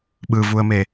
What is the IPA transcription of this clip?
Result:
ɓ ɯ v u ə̯ m e

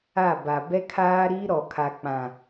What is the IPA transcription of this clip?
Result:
a˦˨ b a˨ b ɛ˦ kʰ aː˦ ɾ iː˦ ɾ ɔ˨ kʰ a˨ k͡p ã˨

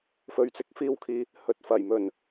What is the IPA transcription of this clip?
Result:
f ɵ˨ ɥ t͡s ɪ˨˥ k̚ f iː˧ w kʰ iː˨ | h ɵ˨˥ t̚ f ɐ˨˩ j m ɵ˨˩ n

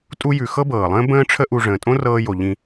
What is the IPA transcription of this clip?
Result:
tʼ u˧ j ʉ˩ x ɤ˥ b ɤː˩ lˠ ə̃ː˥ b ə̃ː˥ ʈ͡ʂʰ ə˥ ʔ u˧ ʐ ə̃ː˩ tʼ õ˥ r ɤː˧ j o˩ ʎ ĩ˧

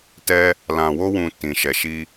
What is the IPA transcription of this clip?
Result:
t ɛ˧ | l ã˨ w o˧ w ũ˨ t ĩ˨ ʃ ɛ˨ ʃ i˧

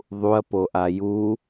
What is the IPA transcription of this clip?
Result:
ðˤ u ɐ̯ p o ʔ a j u

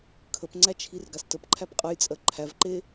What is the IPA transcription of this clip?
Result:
kʰ ə p ŋ͡ǀ æ t͡ʃʰ i r ɡ a s t ə p ǃʰ æ p qʼ ə j t͡sʼ ɜ ǃʰ æ v ǃ e

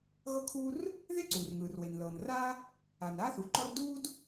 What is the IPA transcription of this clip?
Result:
ɣ ɤ˥ kʰ uː˥ r | ð e˥ ǀ uː˩ r ŋ ɯː˩ r w e˩ n l ɤː˩ n r aː˥ | a˩ n aː˥ θ u˩ ǃ ɔ˥ r d uː˥ d

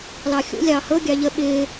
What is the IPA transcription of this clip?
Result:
l ɑ xʲ ṵ lʲ ɑː h ɤ ɡʲ ɑ ʎ ə ɓ ɪː

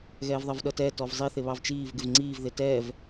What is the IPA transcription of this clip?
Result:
ɣ ɛː v ðˤ ɜ v ɗ ʌ t ɛ t ɔ v zˤ i θ ɪ β ɑ v t͡ʃ iː v ɡ ɪ v ŋ͡ǀ iː v ð ɪ t ɛː v

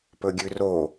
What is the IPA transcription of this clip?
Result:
p ɵ ɡʲ ʉ r o

